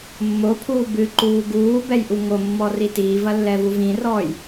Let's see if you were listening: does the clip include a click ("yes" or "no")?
yes